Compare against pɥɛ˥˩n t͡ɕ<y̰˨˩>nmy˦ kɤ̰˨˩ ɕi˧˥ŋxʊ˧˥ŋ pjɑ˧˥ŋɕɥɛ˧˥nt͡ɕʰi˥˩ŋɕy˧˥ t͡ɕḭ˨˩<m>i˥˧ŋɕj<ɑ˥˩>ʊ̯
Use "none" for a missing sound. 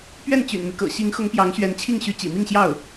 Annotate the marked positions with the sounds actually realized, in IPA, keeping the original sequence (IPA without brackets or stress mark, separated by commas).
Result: y̰˨˩, m, ɑ˥˩